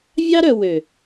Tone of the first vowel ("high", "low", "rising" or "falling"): high